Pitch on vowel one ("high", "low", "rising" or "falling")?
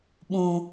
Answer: high